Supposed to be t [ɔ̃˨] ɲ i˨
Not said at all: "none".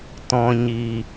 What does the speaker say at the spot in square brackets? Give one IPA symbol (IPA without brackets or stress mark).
ɔ̃˨